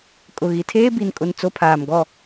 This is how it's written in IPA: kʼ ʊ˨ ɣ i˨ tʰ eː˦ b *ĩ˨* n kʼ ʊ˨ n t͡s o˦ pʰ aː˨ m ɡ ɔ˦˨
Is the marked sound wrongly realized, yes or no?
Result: yes